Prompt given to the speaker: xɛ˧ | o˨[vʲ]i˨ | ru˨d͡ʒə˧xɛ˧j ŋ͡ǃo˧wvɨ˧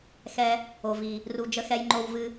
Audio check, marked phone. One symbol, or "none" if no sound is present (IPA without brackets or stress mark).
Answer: v